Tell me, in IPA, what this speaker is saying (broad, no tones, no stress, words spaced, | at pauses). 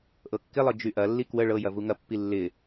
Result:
ʔɤkːɪlˠɤ d͡ʒyʔɐlːi kwə ɭɤjɐ vuŋɐpːi lːɪ